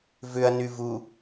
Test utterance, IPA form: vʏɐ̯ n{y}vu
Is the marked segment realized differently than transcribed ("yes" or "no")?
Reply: no